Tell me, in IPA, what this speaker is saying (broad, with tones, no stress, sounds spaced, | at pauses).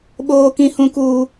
ɓ oː˦ k ĩ˦ h ũ˦ k uː˦